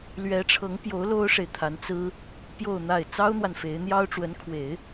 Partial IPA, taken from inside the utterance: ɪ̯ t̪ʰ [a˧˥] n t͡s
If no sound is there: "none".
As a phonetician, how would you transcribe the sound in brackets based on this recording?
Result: a˧˥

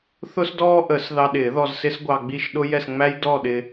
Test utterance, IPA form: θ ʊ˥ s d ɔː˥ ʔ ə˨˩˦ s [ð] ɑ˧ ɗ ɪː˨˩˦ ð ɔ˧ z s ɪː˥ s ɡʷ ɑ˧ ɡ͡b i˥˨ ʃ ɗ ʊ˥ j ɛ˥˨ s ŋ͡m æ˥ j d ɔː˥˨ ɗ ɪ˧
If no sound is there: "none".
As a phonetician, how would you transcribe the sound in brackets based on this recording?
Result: ð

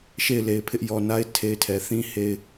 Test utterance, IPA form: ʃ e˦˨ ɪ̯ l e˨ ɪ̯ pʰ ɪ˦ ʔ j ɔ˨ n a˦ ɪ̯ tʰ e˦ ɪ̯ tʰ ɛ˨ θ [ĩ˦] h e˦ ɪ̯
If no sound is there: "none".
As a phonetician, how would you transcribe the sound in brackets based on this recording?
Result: ĩ˦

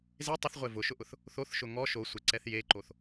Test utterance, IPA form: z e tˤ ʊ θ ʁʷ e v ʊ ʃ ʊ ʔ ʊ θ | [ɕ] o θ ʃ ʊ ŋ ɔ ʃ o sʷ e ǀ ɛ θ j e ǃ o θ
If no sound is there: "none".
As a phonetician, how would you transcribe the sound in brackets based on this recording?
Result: θ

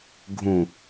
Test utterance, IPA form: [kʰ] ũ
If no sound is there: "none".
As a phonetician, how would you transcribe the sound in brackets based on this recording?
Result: ɡʱ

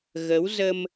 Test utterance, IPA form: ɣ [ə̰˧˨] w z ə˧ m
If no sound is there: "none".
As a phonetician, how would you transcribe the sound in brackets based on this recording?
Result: ə˨˦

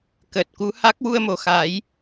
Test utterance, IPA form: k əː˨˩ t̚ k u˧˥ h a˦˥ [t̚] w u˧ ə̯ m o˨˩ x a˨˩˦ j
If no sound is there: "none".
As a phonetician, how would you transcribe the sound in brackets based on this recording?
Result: k̚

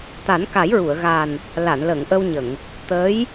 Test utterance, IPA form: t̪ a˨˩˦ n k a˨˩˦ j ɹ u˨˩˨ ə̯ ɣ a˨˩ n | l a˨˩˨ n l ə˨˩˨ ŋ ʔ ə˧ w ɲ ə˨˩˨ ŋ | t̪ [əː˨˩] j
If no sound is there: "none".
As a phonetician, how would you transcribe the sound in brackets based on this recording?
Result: əː˧˥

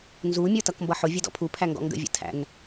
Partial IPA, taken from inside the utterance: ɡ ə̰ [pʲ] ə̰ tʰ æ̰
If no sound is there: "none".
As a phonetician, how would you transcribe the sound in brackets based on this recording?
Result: vʲ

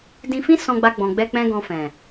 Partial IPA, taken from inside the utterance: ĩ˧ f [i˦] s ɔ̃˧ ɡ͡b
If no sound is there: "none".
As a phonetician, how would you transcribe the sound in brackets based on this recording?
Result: ĩ˦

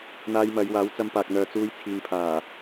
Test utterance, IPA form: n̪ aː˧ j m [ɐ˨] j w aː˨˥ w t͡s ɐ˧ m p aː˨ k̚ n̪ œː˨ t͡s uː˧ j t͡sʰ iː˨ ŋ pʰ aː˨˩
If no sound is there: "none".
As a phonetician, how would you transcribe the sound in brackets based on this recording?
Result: ɐ˨˧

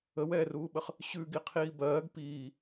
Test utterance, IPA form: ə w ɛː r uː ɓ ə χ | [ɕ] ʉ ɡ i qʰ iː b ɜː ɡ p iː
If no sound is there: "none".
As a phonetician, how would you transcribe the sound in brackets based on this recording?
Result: ɕ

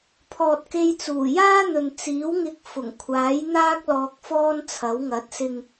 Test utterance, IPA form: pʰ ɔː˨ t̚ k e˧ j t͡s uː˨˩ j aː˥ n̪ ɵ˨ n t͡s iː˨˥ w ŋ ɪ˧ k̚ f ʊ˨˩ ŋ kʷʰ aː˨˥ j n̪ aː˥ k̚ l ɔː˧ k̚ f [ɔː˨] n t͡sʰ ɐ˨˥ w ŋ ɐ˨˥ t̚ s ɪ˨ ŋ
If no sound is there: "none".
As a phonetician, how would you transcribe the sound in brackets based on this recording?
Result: ɔː˥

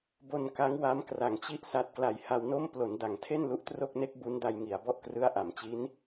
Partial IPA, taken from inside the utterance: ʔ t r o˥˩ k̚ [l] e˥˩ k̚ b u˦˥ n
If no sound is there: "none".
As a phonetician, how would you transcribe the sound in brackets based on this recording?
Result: n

